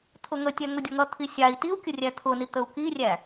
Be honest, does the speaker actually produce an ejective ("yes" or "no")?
no